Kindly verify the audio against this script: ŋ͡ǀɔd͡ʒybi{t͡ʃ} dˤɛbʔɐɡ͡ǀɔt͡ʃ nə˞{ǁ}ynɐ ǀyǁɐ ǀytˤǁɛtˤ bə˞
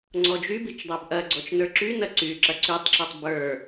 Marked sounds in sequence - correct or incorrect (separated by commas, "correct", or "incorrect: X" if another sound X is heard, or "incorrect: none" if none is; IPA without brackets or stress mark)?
correct, correct